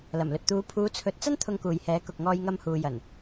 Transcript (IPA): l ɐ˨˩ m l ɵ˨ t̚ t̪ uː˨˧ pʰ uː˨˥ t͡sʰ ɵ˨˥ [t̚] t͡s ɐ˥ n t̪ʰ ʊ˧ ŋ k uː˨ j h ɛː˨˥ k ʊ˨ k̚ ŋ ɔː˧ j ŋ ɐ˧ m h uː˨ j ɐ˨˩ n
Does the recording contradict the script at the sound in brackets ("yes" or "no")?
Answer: no